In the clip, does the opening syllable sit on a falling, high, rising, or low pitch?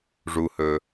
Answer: low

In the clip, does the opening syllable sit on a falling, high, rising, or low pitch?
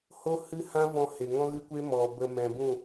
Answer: high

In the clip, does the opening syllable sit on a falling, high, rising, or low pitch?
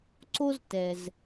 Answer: high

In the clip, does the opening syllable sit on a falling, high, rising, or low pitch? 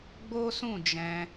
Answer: high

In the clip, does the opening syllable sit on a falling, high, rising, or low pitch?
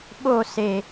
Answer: falling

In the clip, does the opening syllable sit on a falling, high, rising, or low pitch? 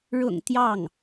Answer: low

